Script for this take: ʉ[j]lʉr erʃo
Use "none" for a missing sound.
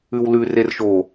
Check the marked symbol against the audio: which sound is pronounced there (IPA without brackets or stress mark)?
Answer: w